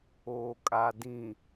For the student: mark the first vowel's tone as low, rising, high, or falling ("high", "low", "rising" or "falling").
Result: low